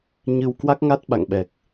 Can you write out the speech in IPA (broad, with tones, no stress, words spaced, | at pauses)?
ɲɨ˧w kwa˦˥k̚ŋa˦˥t̚ɓa̰˧˨ŋ ɓɛ˨˩k̚